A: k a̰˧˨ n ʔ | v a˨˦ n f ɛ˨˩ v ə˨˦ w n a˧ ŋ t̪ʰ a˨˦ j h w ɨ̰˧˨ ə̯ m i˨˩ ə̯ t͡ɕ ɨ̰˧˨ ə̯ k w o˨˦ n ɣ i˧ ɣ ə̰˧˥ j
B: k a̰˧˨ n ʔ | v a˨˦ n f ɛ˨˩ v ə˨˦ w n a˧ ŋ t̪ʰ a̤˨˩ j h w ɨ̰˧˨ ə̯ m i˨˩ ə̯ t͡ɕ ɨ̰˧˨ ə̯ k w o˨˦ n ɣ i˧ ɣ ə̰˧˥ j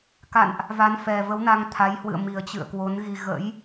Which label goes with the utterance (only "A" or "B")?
A